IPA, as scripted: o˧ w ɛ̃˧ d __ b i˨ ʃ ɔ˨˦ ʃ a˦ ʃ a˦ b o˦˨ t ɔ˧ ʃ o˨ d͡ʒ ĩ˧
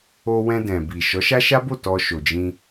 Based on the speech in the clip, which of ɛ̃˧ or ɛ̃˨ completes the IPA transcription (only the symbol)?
ɛ̃˨